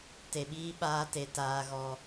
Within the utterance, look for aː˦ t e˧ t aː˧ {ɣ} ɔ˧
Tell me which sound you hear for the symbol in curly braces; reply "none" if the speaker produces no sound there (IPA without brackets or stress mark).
ɣ